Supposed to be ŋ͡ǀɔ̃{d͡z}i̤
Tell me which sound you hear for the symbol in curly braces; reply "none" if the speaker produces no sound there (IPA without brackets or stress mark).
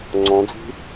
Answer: d͡z